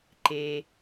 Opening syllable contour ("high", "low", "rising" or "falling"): low